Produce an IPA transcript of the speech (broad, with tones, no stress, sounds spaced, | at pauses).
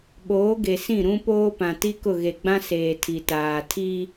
ɓ oː˨˦ ɡ e˨ s ĩ˦˨ ɾ ũ˦ p oː˦ p ã˨ t i˦ k ʊ˦˨ ɣ e˨ ɡ͡b ã˦ s eː˨ tʰ i˨ t aː˨ tʰ i˦